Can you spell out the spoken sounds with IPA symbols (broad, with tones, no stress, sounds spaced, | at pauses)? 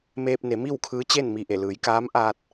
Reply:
m eː˧ p̚ n e˩˧ m i˥˨ w kʰ ɯː˧˥ t͡ɕ e˥˨ n m i˧˩ ʔ e˧˩ l ɯː˩˧ j k aː˧˥ m ʔ aː˧ t̚